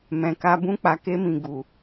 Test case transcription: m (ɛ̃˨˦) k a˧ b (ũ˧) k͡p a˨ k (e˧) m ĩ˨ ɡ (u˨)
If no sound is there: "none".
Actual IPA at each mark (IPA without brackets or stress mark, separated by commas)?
ɛ̃˨, ũ˧, e˧, u˨